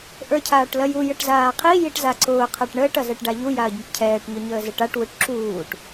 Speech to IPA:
ʔ ə˞ cʰ aː ʈ l ɐ j u j ə ʈ z aː qʰ i j i ʈ z a ǀ ʊː qʰ a ʈ ɳ əː ʈ ɐ z ɛ ʈ ɖ a ʎ u j a ɐ̯ ɟ ɪ ʈ cʰ ɛː ʈ ɲ ʊ ɲ əː z ɪ ʈ a ʈ w u ʈ ǁ uː ʈ

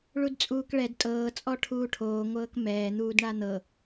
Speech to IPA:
ɭ u d t͡sʼ uː k ɭ ɛ d tʼ ɤː t͡sʼ ɔ ʈʰ uː ʈʰ oː ŋʷ ɤː k m ɛː n̪ uː d ɳ a n̪ ɤ

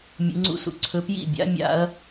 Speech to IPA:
mʲ ṵ˨˦ ŋ͡ǀ ṵ˥˩ s ṵ˥˩ ǀʰ ɵ˨˦ p j ḭ˥˩ bʲ a̰˨˦ mʲ a̰˨˦ ɐ̯

